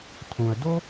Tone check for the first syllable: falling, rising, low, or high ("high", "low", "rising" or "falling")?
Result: low